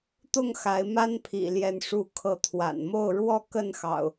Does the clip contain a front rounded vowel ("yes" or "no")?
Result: no